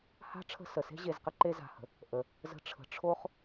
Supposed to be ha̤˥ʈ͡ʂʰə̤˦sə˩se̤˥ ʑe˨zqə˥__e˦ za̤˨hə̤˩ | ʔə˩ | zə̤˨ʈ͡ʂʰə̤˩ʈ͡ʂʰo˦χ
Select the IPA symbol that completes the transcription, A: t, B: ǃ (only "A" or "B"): B